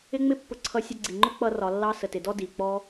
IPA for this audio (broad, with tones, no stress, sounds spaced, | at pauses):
ɪ˦ ŋ͡m ɪ˦ pː ʊ˧ ǀʰ ʌ˧ sʲ ʌ˧ ɡ͡ǀ i˨ ŋ͡ǃ ʊ˦ k͡p ʌ˦ r ɒ˧ lː ɑ˦ s ə˨ t ɪ˨ d ɔ˦ d i˨ k͡p ɔ˦